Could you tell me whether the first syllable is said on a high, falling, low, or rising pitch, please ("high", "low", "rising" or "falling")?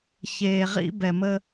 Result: low